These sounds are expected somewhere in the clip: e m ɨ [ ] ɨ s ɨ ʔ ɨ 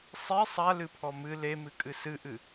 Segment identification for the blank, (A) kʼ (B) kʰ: A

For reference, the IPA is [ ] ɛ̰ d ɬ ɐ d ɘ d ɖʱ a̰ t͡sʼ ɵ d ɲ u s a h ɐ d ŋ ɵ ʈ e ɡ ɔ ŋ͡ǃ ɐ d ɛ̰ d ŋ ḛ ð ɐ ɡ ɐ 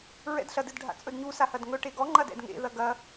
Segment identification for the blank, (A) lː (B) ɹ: B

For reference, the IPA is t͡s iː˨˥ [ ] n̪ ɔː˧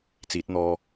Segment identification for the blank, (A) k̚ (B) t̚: B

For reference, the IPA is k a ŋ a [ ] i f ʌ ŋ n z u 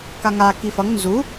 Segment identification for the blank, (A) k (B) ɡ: A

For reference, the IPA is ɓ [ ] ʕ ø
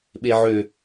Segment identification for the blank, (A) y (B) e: B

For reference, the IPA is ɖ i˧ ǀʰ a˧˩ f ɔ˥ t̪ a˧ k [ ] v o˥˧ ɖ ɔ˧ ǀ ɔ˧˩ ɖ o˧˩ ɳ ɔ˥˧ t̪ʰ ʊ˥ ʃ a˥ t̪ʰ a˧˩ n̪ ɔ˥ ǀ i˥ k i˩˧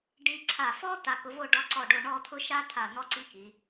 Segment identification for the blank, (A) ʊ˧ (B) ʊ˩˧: A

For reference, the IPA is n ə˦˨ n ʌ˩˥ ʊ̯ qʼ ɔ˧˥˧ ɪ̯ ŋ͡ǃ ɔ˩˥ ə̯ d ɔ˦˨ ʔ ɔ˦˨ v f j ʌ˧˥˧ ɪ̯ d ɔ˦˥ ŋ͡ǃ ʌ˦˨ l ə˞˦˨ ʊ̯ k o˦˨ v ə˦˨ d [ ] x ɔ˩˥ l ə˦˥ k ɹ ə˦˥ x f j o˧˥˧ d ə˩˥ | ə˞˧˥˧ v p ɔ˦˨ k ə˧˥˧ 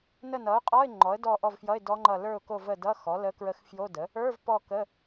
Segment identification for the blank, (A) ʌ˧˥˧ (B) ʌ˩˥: A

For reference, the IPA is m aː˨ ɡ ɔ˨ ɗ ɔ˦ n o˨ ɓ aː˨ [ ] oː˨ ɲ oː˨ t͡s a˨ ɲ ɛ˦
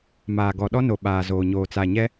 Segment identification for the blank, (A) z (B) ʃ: A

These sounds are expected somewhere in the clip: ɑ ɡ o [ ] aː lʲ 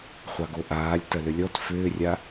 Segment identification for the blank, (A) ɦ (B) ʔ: B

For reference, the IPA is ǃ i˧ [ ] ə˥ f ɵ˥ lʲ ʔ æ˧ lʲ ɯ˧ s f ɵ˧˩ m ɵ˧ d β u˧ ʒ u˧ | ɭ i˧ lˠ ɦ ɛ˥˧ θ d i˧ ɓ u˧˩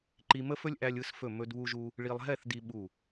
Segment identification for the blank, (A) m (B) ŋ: A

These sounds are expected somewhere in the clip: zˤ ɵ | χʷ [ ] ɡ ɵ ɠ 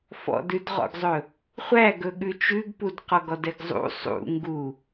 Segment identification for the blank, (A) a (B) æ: B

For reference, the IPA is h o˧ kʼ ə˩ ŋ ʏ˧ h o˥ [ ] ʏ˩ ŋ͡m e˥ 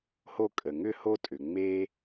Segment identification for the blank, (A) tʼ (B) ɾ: A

